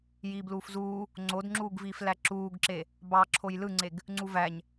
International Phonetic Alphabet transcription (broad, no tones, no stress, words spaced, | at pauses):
jiːbluːfzuː | ŋ͡ǀodŋ͡ǁuːɡviːflæ ǁuːɡǁe | bɑ ǁʰojlɯŋ͡ǀeɡ | ŋ͡ǀuvæɲ